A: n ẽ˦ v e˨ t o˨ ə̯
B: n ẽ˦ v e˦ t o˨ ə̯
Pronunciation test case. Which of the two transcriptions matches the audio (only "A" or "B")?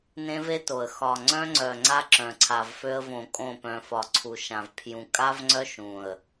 B